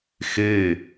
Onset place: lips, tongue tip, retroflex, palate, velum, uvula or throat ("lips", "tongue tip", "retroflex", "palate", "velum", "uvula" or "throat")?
velum